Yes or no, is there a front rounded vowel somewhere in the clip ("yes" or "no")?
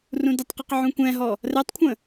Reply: no